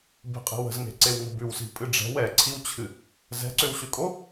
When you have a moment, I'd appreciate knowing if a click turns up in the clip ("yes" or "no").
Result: yes